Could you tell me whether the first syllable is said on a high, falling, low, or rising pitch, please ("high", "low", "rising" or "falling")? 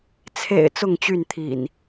low